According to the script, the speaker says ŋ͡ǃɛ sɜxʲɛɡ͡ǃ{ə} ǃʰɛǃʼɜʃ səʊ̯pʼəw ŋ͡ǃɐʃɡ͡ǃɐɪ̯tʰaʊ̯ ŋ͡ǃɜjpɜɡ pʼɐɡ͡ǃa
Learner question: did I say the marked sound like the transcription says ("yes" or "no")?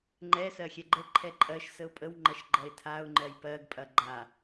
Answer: yes